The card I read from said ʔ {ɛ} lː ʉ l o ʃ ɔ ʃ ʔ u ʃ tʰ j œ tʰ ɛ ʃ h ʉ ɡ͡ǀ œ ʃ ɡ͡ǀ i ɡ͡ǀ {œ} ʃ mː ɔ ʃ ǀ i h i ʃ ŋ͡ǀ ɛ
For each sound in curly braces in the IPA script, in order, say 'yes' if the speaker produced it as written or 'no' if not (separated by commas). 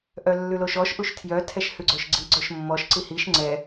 no, yes